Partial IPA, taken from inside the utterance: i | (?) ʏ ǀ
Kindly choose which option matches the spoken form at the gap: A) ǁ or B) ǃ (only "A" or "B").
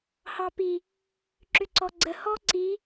A